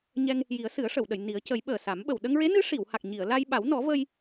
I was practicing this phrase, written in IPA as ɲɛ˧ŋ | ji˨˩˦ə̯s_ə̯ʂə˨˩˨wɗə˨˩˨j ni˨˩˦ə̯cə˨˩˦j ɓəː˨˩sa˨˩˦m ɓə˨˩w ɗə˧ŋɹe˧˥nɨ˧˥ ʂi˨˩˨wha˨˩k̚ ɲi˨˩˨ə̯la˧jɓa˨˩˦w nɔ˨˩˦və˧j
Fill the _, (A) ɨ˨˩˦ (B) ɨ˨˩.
A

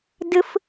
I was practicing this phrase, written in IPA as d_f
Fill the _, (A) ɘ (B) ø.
A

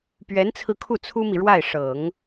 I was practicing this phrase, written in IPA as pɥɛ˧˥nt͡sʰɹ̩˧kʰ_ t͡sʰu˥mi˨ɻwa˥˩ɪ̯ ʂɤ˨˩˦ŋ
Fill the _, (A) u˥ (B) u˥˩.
B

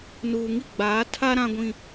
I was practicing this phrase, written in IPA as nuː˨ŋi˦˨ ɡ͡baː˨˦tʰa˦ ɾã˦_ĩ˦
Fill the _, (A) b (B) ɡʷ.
B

